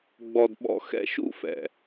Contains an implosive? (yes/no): yes